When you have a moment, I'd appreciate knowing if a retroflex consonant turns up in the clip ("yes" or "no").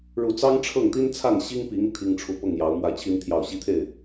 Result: yes